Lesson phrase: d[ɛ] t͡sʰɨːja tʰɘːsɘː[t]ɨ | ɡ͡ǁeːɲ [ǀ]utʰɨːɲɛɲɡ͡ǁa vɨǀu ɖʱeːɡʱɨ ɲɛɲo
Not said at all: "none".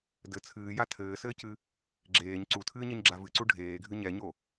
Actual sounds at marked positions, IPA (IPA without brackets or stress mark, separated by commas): ɘ, c, ǀ